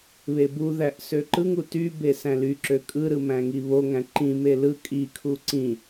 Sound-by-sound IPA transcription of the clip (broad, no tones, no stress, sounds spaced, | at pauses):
β e b u ð æ ʔ s ø ǃ ɯ ŋ u t y b e s æ̃ l y ǁ ø kʼ ɯ ɾ ɯ m æ̃ ŋ i β o ŋ æ̃ ǃ ĩ m e l ɯ kʼ i kʰ u ǀ ĩ